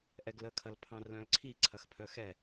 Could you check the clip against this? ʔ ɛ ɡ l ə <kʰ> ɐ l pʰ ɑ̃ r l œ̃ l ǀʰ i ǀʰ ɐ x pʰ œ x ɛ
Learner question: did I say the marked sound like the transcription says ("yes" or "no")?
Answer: yes